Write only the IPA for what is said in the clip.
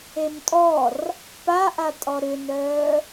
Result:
emtʼɔr | paʔa tʼɔɾʏnœː

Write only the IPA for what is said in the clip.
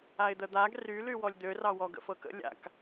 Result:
aɪ̯d̪əd̪aɡ ryly wɔlʲd̪ørɑwɔ ɡə̰fɤkə̰ lʲa̰k

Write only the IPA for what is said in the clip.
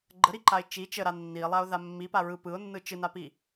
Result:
ɡ͡ǃəɾiǃaɪ̯ t͡ʃi t͡ʃəɾa nːilˠaʊ̯ða mːipaɹɯ pɯʊ̯nːɯ t͡ʃɯnapi

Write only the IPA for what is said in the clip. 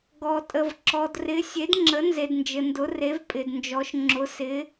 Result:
ɡɔ˨tʼə˨v ǁɔ˨drɪ˨˦ sʲe˨˦dŋ͡ǁə˨˦nze˨dnd͡ʒɘ˨ ndʊ˨˦re˨˦v pʼɪ˨dnd͡ʒɔ˨˦ʃ ŋ͡ǁʊ˨˦sɪ˨˦

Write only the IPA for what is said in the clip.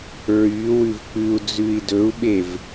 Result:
ɹywʉv k͡pʉu̯d͡zʉi̯ dɵu̯ɓev

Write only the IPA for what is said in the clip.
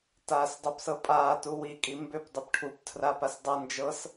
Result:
taːsdˤopsɤpʼaː tuwi kʼimbøp dˤipʈʰup tʰrapasdˤɤ nd͡ʒɤs

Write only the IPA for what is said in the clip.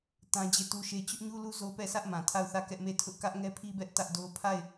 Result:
tã˦d͡ʑe˦˨tu˦ʃe˦ t͡ɕʊ˦ʔɲu˦lu˦ zo˦pɛ˦˨sʰä˦ʔ mã˨tʰa˦˨ʊ̯ θä˦˨kɛ˦ʔme˦˨ tʰʊ˦ʔ kä˦ʔŋɛ˦pʰi˦bɛ˦ʔ tä˦ʔdo˦ pʰa˦˨ɪ̯

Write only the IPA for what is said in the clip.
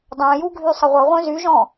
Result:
dˤœ̃ju ɡʱysˤəʁʷəʁʷœ̃ zyʒɔ̃

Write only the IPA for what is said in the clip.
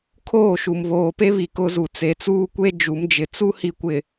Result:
kʰoː˦˨ʃu˨m βoː˨pe˦βi˨ kʊ˦zu˨ t͡se˨t͡suː˦kʷe˦ d͡ʒu˨˦md͡ʒɪ˨ t͡su˦hi˨ kʷɪ˨

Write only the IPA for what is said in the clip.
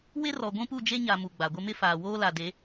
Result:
wɪ˦rɔ˨ ɡʷũ˦pu˦˨d͡ʒe˦ ɲa˨ mu˨ɡ͡ba˨ɡʷɪ˦ mɪ˦faː˨ woː˦la˨de˨˦

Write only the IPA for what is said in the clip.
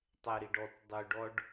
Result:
tˤeɾiɖ ɔt dˤuɖɔɖ

